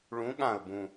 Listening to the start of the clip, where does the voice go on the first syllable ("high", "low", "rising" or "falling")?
rising